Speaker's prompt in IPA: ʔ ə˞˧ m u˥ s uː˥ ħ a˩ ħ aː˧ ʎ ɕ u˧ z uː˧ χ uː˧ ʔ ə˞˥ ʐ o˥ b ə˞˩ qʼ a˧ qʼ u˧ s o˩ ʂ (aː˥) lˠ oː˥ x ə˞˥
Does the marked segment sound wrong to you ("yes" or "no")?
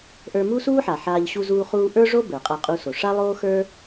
yes